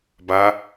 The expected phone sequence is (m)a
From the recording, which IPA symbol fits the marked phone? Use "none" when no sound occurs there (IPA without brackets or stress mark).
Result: b